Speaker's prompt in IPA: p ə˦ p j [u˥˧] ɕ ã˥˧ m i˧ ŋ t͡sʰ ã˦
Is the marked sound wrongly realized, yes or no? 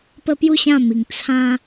no